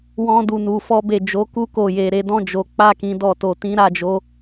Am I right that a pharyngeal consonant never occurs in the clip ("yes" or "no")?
yes